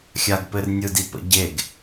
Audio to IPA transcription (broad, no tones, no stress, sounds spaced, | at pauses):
xʲ a ɡ p ɘ r nʲ ɯ d i p ə̰ ɟ e ɡ